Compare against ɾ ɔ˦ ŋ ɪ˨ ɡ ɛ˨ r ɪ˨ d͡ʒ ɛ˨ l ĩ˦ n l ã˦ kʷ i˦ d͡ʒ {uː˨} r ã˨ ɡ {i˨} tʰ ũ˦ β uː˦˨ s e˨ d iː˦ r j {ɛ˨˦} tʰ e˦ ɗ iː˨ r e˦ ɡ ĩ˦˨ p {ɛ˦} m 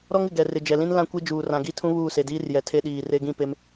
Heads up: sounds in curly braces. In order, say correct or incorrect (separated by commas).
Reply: correct, incorrect, incorrect, incorrect